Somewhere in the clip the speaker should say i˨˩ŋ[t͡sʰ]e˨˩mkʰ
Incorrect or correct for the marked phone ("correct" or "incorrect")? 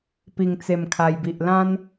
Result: incorrect